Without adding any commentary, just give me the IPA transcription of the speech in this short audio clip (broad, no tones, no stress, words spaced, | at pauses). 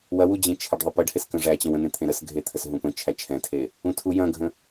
wɐwud͡ʑẽ t͡ʃʰɐɖðˤəpəɖ heskə̃ʐæt͡ɕə̃w ə̃n̪ẽ t̪ʰẽɾəsɡʱet̪ʰəs ɦũpə̃t͡ʃʰæ t͡ʃʰɛ̃tʰe | ũtʰu jɐ̃ɡʱə̃